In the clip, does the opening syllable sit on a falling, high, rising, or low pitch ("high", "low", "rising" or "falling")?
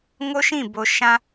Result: high